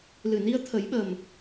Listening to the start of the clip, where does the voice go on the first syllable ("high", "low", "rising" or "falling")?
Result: low